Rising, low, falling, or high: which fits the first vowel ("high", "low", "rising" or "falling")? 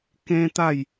high